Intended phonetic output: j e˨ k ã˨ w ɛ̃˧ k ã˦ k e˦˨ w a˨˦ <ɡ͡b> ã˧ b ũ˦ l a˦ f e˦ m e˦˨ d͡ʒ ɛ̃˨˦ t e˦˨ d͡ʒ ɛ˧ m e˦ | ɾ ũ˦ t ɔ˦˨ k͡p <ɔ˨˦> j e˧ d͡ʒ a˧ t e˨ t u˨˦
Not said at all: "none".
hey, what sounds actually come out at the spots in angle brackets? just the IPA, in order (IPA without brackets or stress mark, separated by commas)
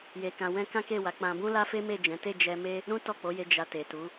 k͡p, o˨˦